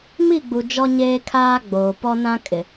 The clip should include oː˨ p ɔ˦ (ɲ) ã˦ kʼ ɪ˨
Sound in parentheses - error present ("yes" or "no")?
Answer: yes